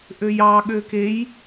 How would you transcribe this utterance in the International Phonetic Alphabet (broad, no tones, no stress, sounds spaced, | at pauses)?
ʔ ø j ɑ ɠ ø k e j